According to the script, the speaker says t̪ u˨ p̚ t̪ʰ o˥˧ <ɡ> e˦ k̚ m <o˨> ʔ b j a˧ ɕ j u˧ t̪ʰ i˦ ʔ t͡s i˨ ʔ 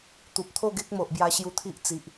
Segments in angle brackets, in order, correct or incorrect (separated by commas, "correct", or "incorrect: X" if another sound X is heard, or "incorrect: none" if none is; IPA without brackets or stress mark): correct, correct